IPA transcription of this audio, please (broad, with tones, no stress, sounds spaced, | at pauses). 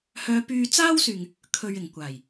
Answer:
h œː˨˧ p yː˧ t͡s aː˥ w s yː˨ ŋ | kʰ ɵ˨ ɥ ɪ˨˩ ŋ kʷ aː˨˩ j